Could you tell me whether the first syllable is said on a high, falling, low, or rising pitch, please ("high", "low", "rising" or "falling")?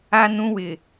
high